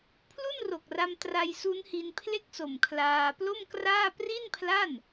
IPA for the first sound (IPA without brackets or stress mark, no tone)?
pʰ